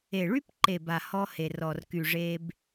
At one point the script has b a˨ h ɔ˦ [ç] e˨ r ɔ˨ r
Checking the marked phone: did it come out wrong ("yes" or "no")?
yes